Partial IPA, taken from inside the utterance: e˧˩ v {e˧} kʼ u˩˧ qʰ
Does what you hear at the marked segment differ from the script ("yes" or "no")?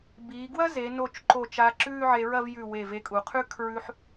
no